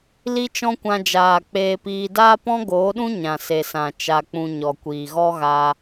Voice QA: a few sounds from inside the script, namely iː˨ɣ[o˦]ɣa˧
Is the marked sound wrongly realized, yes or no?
yes